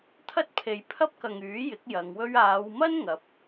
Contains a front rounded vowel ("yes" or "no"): yes